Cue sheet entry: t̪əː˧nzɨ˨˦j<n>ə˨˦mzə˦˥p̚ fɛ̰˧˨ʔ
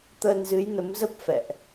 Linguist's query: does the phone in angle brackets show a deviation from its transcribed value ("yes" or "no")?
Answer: no